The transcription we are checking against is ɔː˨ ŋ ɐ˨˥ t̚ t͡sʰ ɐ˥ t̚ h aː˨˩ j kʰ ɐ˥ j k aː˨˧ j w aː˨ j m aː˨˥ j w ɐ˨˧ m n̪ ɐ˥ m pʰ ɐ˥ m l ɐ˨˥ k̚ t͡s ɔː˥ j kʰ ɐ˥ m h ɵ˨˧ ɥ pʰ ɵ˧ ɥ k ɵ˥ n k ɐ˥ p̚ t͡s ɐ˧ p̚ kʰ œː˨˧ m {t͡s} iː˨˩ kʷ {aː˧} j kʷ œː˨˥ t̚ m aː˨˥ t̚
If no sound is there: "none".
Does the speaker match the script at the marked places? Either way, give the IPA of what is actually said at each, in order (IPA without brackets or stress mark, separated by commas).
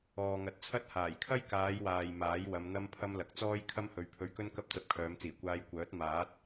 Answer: t͡s, aː˧